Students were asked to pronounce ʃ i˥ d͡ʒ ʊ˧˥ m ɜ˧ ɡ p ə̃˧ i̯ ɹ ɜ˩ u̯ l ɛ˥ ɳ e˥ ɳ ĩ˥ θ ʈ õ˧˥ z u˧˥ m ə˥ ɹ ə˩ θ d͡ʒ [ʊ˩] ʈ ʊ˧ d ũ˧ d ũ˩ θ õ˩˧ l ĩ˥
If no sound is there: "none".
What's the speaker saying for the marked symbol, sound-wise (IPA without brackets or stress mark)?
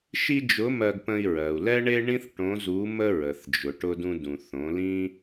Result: ʊ˩